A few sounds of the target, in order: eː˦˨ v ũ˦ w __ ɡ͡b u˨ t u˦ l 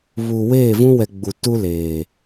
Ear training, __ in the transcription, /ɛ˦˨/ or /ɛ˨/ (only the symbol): ɛ˨